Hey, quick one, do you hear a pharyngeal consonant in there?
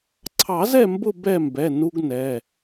no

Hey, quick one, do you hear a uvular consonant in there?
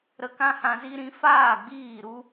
no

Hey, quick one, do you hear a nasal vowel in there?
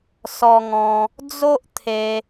yes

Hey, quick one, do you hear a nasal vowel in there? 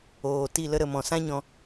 yes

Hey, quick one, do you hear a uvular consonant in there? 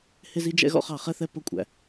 yes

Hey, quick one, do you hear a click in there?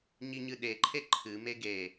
yes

